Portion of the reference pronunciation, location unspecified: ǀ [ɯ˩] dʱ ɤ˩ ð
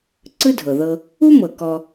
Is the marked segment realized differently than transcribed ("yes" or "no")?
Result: yes